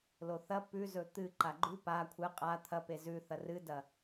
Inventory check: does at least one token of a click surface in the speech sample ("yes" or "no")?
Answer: yes